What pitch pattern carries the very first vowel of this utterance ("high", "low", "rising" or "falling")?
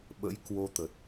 rising